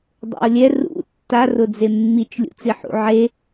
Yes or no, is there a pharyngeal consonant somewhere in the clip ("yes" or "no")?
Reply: yes